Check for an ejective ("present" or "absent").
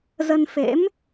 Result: absent